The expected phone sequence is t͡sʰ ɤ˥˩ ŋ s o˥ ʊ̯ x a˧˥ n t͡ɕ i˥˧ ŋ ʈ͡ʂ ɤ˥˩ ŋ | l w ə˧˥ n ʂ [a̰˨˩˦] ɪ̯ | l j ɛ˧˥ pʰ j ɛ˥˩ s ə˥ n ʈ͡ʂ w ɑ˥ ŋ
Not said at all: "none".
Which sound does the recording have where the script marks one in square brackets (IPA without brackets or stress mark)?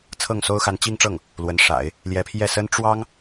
a̰˨˩˦